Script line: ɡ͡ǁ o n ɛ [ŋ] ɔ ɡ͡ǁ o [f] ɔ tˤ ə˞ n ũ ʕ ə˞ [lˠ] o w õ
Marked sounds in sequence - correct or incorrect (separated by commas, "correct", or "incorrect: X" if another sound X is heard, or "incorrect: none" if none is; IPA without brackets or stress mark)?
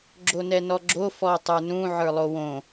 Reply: incorrect: n, correct, correct